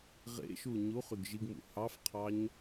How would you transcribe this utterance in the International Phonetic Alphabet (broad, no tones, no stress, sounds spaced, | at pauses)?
ʁ ḛ ʃ u ɲ u χ y ɡ ʒ i ɡ m ṵ h ɑ f qʰ ɑ ɲ